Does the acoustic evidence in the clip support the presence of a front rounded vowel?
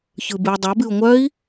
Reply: yes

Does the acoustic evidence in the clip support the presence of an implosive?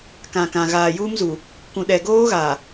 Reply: yes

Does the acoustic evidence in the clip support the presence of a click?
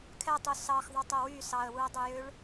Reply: no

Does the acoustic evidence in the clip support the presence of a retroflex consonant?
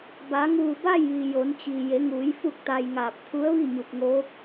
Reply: no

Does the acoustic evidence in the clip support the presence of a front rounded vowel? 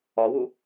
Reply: no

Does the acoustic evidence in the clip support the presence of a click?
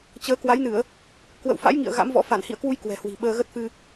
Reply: no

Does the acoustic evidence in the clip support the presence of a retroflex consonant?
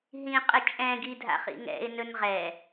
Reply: no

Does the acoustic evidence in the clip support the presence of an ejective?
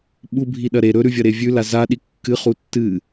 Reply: no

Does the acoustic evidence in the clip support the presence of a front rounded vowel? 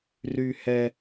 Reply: yes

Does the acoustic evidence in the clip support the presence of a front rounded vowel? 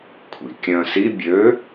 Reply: yes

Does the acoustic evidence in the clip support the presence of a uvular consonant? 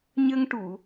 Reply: no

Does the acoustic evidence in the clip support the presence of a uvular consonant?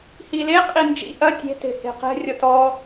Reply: yes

